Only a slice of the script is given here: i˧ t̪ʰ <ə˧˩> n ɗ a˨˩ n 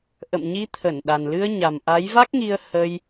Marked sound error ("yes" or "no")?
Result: no